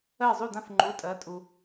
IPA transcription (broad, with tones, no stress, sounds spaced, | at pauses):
ɜ˥˩ zˤ u˥˩ d ã˥˩ f ŋ͡ǃ u˩˧˩ tʼ ɜ˩˥ tʼ u˩